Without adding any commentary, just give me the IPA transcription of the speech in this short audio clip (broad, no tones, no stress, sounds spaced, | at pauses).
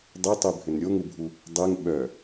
dˤ e tˤ y bʱ ʏ n ɾʲ o ŋ u bʱ u | dˤ e ŋ ɓ œ